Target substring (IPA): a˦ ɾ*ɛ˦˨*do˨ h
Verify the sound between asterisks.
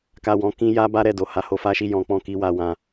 correct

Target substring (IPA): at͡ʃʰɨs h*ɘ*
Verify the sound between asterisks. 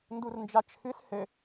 correct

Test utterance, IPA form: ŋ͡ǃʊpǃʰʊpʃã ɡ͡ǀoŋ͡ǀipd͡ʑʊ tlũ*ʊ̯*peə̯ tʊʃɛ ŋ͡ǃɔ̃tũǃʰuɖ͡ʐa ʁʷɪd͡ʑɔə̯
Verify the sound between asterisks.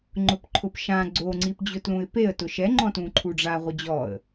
incorrect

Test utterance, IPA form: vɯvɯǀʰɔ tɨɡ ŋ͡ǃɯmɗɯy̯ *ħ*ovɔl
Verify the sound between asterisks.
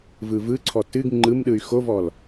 incorrect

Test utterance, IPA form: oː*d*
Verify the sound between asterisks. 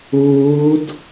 correct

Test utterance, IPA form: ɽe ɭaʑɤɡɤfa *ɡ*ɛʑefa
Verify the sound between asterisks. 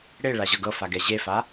correct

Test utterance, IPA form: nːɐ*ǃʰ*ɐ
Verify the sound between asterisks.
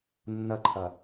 correct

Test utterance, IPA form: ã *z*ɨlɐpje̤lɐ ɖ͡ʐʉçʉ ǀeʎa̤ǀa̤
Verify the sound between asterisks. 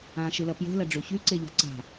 incorrect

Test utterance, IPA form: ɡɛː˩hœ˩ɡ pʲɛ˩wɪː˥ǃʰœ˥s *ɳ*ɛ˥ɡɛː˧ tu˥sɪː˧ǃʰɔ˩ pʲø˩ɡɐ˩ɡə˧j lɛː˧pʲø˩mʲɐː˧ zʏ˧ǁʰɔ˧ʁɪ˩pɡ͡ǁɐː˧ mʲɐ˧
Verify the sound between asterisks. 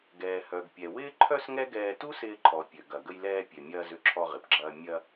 incorrect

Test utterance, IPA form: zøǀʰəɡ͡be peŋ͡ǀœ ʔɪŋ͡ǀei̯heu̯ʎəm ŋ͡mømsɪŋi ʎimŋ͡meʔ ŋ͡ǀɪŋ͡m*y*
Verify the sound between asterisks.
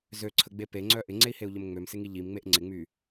correct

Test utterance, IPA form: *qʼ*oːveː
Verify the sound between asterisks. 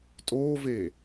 incorrect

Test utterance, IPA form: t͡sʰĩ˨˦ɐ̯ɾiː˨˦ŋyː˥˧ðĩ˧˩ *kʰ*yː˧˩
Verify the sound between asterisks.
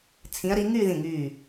incorrect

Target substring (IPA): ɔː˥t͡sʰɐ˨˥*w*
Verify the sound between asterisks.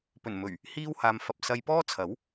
correct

